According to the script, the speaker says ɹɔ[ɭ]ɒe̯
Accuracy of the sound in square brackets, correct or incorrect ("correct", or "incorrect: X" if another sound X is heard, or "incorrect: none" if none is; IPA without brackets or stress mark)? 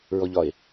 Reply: incorrect: ʎ